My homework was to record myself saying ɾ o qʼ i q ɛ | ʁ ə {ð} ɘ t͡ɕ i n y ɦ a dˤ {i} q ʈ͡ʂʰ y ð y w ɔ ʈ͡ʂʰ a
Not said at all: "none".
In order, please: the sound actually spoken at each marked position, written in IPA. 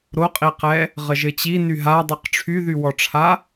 ʒ, y

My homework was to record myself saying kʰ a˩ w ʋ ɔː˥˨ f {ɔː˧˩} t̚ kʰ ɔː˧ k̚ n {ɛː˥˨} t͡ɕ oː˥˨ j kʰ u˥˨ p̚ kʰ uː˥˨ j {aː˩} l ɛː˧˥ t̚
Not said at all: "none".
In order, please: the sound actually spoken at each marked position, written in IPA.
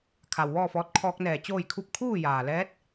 ɔː˧, ɛː˧˩, aː˩

